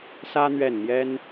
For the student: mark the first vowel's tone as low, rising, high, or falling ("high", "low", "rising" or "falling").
high